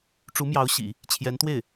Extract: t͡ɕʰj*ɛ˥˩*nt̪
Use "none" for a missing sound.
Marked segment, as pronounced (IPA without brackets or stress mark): ɛ˧˥